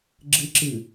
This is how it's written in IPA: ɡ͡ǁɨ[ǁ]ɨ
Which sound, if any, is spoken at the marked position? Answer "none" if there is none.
ǁ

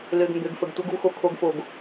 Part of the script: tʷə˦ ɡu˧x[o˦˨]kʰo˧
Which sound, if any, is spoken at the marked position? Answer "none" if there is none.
o˧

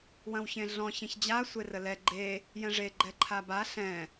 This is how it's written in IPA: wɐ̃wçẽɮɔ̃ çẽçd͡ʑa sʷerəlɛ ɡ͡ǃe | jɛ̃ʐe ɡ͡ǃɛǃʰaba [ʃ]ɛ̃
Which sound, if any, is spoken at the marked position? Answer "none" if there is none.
ɬ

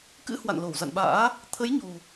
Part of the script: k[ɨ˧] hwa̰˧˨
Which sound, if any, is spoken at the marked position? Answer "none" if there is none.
ɨ̰˧˥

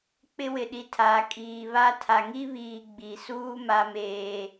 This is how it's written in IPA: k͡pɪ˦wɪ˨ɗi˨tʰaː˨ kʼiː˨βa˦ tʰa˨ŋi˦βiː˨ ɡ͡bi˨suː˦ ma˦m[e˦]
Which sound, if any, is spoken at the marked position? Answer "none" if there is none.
eː˦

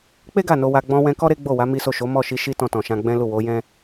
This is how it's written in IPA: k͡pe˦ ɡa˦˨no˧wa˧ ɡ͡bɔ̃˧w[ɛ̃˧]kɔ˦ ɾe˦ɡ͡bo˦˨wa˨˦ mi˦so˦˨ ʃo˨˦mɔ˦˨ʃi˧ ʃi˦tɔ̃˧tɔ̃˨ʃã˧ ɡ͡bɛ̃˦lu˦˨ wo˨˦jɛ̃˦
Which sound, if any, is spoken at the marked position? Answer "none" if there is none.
ɛ̃˧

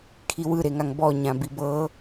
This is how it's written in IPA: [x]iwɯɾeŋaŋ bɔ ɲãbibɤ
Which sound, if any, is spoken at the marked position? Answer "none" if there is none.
kʰ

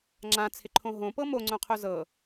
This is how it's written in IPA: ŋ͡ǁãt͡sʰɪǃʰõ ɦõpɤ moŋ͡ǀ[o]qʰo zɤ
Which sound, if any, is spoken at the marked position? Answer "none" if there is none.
õ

